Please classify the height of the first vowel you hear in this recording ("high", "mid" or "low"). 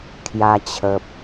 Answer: low